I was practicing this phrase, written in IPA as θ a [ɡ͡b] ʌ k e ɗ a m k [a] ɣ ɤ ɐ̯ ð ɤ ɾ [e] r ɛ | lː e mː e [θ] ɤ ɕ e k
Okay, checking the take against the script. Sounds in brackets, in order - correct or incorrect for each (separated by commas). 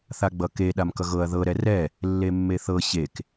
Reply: correct, incorrect, incorrect, correct